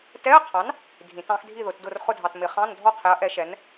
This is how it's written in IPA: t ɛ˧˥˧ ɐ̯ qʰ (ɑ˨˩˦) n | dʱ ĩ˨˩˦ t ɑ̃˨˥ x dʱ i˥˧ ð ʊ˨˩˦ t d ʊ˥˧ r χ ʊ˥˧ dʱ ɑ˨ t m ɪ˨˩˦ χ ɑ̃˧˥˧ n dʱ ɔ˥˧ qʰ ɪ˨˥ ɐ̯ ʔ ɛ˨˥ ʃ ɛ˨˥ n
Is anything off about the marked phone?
yes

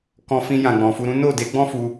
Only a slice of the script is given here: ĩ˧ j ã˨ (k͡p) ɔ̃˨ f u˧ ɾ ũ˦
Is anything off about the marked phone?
yes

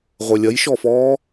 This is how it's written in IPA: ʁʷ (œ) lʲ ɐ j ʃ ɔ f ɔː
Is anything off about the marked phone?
no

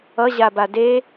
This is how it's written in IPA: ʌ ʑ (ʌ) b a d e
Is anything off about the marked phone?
yes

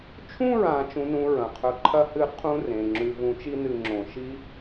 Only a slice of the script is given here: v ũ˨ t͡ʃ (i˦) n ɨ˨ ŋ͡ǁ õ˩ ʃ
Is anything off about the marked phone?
no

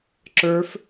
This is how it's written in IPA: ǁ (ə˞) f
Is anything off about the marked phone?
no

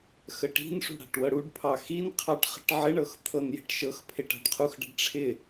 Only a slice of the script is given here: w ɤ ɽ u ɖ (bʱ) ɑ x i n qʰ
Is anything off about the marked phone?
yes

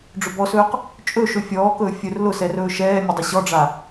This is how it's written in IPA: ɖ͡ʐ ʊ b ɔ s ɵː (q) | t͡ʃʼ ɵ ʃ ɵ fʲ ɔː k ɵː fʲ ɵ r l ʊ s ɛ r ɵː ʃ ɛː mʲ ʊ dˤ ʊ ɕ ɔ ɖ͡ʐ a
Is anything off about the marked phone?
no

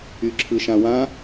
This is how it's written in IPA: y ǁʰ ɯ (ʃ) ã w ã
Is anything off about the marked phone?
no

